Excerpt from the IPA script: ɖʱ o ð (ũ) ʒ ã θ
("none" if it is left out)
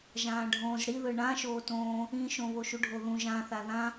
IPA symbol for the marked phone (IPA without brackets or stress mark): ũ